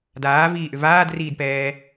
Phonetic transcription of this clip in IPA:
d aː v iː ʔ ʏ v aː d r iː d p ɛː

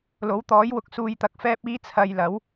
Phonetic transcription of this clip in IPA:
l o˨˥ w t̪ ɔː˨˥ j w ʊ˨ k̚ s uː˨ j t̪ ɐ˨ k̚ f ɛː˧ p̚ iː˧ t͡sʰ ɐ˨ j l ɐ˨˥ w

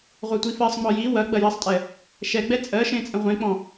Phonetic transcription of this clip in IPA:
ʁʷ ɜ tʷ i f ɜ sˤ ŋ͡m ɔ j i w ɐ ɡ͡b ɐ j ɐ sˤ tʼ ɛ | ʃ ɛ ɡ͡b ɛ t͡sʼ ɜ ʃ ẽ t͡sʼ ə̃ ʁʷ ẽ k͡p ɔ̃

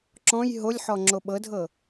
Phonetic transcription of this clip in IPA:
ǁ ɔ̃ j ɦ o lʲ ħ ɔ ŋ͡ǁ o ɓ ɤ dʱ ɤ

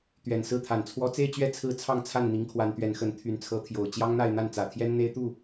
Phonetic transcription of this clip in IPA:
t̪ ɥ ɛ˨˩ n s ɹ̩˥˩ t̪ʰ a˨˩ n t͡sʰ w ɔ˥ t͡s e˥˧ ɪ̯ t͡ɕ ɥ ɛ˥˧ t͡sʰ ɹ̩˥˧ t͡sʰ ɑ˥˧ ŋ t͡sʰ a˥˩ n n̪ i˧˥ ŋ kʰ w a˧˥ n t̪ ɥ ɛ˧˥ n x ə˧˥ n t̪ʰ y˧˥ n t͡sʰ ɤ˧˥ t̪ʰ j o˨˩ ʊ̯ t͡ɕ j ɑ˥ ŋ n̪ a˥˧ ɪ̯ n̪ a˥˩ n t͡s ä˨˩ t̪ʰ j ɛ˥ n n̪ e˥ ɪ̯ t̪ u˥˩

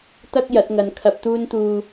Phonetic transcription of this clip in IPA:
t̪ ɐ˥ k̚ j ɐ˨˥ t̚ ŋ ɐ˨ n kʰ ɐ˧ p̚ t̪ uː˧ n t̪ uː˨

